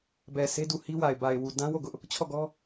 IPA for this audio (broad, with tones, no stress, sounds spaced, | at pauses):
b ɛ˨ sʰ e˦ d u˨ h i˦ w a˨ ɪ̯ b a˨ ɪ̯ w u˨ d ã˦ w o˦˨ ɡ ʊ˦ ʔ | t͡ɕʰ ɔ˦˨ ɡ ɔ˦